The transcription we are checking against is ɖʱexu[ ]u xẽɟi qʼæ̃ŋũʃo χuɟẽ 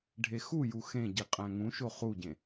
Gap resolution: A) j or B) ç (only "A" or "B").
A